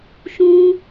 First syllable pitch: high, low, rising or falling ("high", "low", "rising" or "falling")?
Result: high